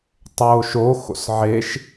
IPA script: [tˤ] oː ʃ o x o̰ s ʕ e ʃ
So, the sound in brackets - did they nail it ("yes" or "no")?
yes